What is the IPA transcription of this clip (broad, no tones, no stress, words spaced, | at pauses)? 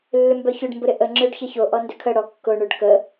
lːʏmbœçʏɖ mbʊɾɪʔə ŋ͡ǁøɖçəço ʔɔndʏkʰə ɽɔkːʊ ɳʏɖkə